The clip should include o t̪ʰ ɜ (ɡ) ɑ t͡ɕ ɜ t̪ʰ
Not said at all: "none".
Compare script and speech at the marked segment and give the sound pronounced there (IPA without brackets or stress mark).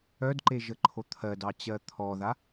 d